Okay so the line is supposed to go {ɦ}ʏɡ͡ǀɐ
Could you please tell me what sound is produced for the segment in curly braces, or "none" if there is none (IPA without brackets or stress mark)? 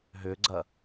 ɦ